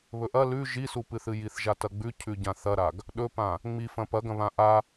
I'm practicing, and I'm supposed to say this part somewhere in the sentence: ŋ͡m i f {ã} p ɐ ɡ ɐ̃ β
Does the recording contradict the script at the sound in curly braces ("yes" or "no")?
yes